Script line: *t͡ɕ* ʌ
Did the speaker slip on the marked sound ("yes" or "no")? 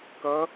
yes